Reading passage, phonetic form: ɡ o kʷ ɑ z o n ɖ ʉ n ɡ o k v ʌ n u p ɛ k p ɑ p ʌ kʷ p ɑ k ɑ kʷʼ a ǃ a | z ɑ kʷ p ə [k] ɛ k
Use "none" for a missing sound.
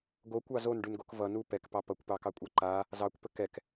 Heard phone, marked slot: k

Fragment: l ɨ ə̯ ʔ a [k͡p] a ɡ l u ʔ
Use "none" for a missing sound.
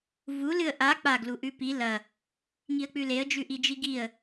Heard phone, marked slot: k͡p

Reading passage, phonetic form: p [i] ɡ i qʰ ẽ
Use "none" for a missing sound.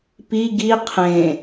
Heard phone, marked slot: i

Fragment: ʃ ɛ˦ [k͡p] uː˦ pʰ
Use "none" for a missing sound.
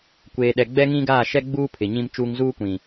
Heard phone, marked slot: ɡ͡b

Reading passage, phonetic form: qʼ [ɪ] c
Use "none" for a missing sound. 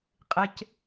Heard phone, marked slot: ɪ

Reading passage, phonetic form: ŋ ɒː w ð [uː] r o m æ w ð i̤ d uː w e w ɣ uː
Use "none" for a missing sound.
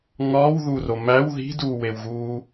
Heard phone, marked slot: u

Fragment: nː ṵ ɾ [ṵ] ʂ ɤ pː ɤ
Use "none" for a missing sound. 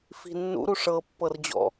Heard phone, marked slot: u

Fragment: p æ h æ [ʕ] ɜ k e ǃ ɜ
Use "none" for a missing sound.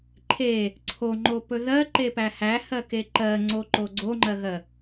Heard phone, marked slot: h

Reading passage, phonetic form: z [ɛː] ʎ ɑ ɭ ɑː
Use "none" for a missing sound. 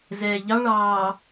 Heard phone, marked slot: ɛː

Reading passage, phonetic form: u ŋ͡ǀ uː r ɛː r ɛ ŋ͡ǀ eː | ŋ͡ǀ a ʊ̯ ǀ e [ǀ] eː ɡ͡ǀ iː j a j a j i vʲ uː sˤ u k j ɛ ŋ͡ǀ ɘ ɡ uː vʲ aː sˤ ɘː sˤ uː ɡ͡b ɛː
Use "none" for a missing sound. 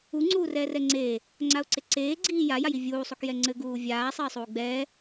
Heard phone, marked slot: ǀ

